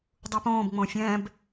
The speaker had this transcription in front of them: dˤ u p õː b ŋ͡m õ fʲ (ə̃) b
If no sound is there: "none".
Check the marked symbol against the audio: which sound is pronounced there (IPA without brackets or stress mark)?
ɛ̃